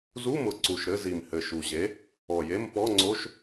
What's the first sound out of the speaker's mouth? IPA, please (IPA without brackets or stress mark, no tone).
z